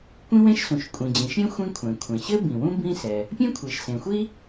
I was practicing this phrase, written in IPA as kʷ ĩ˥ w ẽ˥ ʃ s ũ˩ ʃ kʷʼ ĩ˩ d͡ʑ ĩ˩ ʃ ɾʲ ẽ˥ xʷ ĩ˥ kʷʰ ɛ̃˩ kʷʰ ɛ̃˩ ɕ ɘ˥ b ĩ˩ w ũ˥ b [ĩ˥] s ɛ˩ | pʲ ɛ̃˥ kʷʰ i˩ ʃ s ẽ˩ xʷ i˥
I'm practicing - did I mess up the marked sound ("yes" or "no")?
no